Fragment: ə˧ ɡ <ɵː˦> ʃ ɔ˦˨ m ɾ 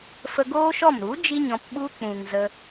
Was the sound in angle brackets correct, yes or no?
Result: no